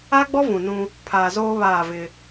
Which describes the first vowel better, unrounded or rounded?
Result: unrounded